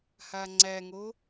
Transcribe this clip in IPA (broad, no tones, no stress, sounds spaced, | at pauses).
h a ŋ͡ǀ æ ŋ o